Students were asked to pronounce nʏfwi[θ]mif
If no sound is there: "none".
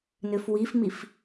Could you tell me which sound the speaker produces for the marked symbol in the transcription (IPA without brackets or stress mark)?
f